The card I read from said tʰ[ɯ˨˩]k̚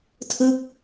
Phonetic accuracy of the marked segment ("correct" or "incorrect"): incorrect